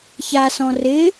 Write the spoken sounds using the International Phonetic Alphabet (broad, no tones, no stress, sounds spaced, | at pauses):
ç a s ɔ̃ r ɪ